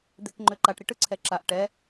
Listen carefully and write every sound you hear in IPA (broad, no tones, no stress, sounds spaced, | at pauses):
d̪ e k ŋ͡ǃ ø ǃ a ʈ ɾ i ʈ ɯ ǀʰ ɛ ǁ a ʔ ʈ ɛ